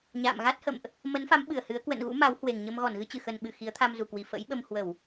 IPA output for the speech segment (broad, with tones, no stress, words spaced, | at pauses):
ɲa̰ː˧˨m ɣa˦˥t̚hə̰˧˨mʔ | mə˨˦nfa˨˦m ɓɨ˧˩ə̯hɨ˨˦ə̯ kwə̰˧˨n ɣṵ˧˥ma˨˦whwe˨˩ŋɲə˧m ɣɔ˧˩nɣɨ˧t͡ɕɨ˧˩xə˨˩n ɓɨ˧˩ xi˨˦ə̯t̪ʰa˧mzu˨˩kwi˨˩ fə̰˧˥jɓə˧m hwə˧˩˨w